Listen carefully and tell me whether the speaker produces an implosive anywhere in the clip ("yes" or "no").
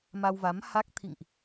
no